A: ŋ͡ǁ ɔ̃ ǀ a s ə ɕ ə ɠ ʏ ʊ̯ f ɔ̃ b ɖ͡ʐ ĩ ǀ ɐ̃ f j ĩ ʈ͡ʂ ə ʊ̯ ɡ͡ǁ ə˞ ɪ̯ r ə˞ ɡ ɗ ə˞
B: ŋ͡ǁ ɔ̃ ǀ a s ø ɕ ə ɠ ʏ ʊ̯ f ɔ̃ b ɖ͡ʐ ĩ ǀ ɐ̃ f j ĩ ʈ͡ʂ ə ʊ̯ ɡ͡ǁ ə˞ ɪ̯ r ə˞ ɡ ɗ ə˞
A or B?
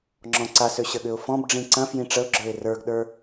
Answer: B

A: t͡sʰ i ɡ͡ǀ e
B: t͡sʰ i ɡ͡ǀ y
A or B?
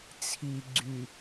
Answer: B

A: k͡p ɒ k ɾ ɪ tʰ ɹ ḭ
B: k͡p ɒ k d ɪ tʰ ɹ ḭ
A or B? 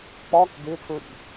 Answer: B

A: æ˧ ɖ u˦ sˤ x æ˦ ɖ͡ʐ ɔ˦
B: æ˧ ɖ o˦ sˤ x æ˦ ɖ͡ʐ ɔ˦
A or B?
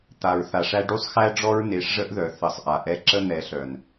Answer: A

